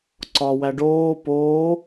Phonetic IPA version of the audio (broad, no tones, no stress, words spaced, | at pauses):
ǀɒ wæɖoː poː